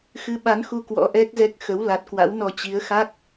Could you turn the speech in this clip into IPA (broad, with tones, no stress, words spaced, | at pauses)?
xɨ˨˦ɓa˨˦nxu˧ kwɔ̰˧˥ʔɛ˦˥k̚zɛ˦˥k̚ xə˨˦w la˨˩t̚kwa̰˧˥wnɔ˧ t͡ɕi˨˦ə̯xa˦˥k̚